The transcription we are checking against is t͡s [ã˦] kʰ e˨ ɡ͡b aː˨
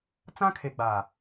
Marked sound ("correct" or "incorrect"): correct